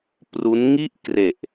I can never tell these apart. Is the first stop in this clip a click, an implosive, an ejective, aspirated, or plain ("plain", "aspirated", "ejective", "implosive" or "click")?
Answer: plain